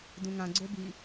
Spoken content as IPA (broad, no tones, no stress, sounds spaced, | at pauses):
d ũ ŋ ã ɡ͡ǀ o b i